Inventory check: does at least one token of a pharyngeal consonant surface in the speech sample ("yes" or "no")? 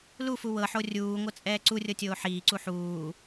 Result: yes